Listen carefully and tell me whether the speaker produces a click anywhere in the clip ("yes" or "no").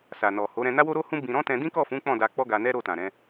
no